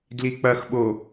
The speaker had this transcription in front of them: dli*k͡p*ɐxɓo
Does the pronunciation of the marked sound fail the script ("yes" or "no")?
no